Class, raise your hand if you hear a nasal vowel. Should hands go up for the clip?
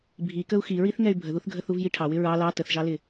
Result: no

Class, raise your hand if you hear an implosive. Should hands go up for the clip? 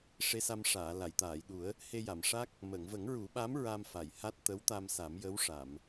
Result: yes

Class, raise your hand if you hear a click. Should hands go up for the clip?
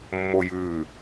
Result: no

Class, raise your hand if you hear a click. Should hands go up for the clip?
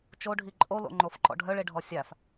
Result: yes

